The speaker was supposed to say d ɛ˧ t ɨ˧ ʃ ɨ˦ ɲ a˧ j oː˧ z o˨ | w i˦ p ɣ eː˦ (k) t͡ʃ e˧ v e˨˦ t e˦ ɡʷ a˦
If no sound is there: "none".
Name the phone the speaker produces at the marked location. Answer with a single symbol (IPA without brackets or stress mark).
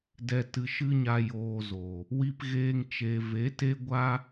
ŋ